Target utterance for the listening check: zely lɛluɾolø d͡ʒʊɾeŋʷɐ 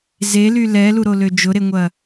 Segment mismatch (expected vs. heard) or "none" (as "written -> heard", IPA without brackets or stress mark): none